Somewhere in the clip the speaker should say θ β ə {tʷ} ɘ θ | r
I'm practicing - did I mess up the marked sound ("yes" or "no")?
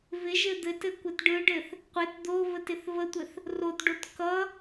no